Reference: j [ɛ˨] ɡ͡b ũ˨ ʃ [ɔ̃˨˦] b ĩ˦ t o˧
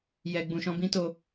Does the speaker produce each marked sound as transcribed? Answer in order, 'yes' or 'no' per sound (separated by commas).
yes, yes